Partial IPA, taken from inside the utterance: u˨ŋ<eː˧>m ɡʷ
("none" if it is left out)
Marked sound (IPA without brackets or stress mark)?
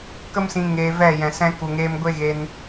eː˧